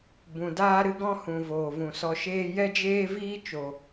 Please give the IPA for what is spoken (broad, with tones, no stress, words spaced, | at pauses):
bũ˧ daː˦ɾɨ˦ɡɔ̃˦hũ˨ voː˨vũ˨sɔ˧ ʃeː˦ jɛ˦d͡ʒeː˦viː˦ t͡ʃo˨